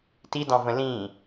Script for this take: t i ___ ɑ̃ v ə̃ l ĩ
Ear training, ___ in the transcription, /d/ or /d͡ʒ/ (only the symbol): d